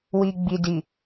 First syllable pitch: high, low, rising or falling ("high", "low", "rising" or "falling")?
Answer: low